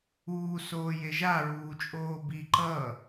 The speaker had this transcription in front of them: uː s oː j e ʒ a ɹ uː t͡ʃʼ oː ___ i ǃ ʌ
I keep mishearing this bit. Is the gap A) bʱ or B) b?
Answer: B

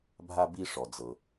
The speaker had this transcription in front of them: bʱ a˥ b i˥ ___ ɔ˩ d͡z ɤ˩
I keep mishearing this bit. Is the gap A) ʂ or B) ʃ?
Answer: A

